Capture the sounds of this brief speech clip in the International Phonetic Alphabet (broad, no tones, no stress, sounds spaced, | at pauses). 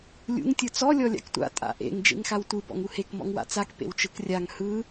lʲ ṵ ŋ tʲ ɯ t͡s ɔ lʲ ɔ lʲ a̰ k tʷ a̰ tʼ a̰ ʔ ḛ ŋ d͡ʒ ḛ ŋ x a w tʷ ɯ b ɔ̰ ŋ u h e k m ɔ̰ ŋ w a̰ t͡s a k p ḛ w t͡ʃ ɯ k rʲ a ŋ h ɯ